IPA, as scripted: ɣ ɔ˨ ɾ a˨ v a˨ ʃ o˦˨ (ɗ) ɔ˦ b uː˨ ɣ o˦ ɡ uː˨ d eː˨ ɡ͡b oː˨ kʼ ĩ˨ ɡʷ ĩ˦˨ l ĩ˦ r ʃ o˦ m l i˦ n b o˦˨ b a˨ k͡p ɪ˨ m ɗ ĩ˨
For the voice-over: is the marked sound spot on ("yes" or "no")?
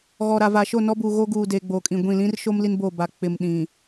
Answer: no